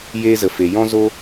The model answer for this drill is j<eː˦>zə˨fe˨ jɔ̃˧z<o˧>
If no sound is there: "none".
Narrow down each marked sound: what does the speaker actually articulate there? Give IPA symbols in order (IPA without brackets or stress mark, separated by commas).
eː˧, o˧